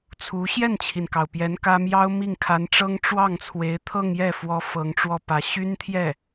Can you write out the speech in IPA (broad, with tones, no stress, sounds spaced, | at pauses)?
t͡sʰ u˧˥ ɕ j ɛ˥˩ n t͡ɕʰ i˩ n k ɑ˩ ʊ̯ p j ɛ˧˥ n k ä˥ m j ɑ˥ ʊ̯ m i˥˩ ŋ kʰ a˧˥ n ʈ͡ʂ ɤ˥ ŋ ʈ͡ʂ w ɑ˥˩ ŋ t͡sʰ w e˧˥ ɪ̯ t̪ʰ ɤ˥˧ ŋ j ɛ˥˩ f w ɔ˥ f ɤ˧˥ ŋ ʈ͡ʂ w ɔ˥˩ p ä˧˥ ɕ y˥ n t̪ʰ j ɛ˥˩